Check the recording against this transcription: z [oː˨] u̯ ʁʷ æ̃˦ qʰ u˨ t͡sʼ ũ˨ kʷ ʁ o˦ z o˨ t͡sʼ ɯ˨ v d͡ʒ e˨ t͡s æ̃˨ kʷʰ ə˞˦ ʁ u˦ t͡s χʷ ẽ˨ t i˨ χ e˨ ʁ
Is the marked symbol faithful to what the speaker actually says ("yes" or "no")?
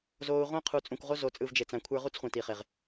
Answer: yes